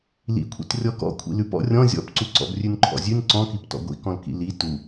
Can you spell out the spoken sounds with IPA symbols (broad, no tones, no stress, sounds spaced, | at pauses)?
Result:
l ḭ kʷʰ ḭ t rʲ ɔ k ɔ̰ kʷʰ ḭ l ʉ p ɔ̰ rʲ ɔ̃ zʲ ɔ̰ p ǀ u ǀ ɔ̰ b rʲ ʉ n ǃʰ ɔ̰ zʲ ʉ n ǀ ɔ̃ k i p t ɔ̰ ɡʷ ḭ k ɔ̃ l k ḭ l i t u